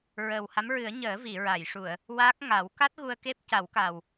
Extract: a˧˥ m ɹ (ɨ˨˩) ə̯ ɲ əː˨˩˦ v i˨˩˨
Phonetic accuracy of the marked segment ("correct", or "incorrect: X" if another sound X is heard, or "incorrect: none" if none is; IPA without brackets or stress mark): incorrect: ɨ˨˩˦